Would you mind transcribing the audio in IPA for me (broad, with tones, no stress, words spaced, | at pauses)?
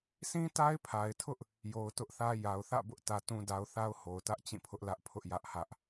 sĩ˦ta˦ɪ̯pʰa˨ɪ̯tʰʊ˦ʔ | jo˨ʊ̯tʊ˦ʔθä˦ ja˨ʊ̯θä̰˦˨bʊ˦ʔ tä˦tũ˦da˦ʊ̯ θa˦ʊ̯ho˨ʊ̯tä˦ʔ t͡ɕĩ˦˨pʰʊ˦ʔlä˦ʔ pʰʊ˦ʔjä˦ʔhä˦ʔ